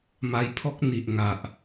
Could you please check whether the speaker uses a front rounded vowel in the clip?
no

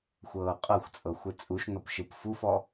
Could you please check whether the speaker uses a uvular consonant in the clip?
yes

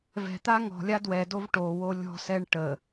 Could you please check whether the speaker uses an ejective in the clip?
no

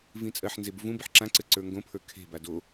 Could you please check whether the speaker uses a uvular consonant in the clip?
no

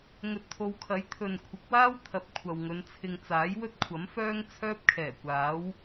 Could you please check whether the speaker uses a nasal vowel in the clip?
no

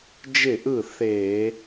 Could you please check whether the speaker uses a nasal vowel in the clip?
no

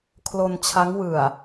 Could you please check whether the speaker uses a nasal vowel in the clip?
no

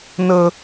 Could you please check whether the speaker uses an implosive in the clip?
no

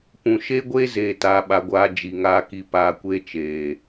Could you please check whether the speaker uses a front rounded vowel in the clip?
no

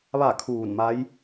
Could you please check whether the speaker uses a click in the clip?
no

